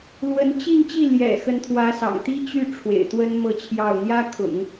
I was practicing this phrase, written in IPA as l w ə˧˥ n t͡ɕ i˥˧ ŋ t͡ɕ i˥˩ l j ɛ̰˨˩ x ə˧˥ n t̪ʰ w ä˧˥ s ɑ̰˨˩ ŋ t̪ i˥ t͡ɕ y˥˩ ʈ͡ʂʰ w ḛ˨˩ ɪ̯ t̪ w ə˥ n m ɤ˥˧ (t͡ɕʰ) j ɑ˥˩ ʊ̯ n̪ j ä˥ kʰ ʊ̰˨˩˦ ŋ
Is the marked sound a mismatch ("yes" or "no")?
no